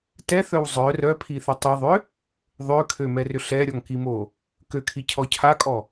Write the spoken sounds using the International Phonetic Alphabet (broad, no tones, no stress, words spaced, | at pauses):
tɛθœw zˤœ rœpʰiθʏ tˤiðˤʏ | ðˤøkʰømɛrʏ ɬɛɾʲɔŋkimo | køkʰicʰɔ cʰakʼɔ